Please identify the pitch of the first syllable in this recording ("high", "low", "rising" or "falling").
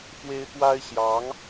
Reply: high